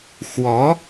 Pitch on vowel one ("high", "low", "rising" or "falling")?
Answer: rising